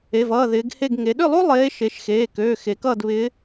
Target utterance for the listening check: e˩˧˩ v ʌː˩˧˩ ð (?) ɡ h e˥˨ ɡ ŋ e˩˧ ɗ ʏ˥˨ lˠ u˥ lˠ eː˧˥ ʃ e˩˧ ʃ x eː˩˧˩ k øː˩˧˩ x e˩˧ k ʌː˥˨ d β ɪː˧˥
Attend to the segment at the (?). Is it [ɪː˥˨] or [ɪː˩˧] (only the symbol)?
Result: ɪː˩˧